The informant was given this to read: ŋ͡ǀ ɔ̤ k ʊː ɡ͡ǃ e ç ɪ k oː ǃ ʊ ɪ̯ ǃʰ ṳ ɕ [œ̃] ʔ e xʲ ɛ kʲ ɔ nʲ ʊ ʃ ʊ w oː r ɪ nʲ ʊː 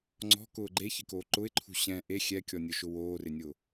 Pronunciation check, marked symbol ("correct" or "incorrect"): incorrect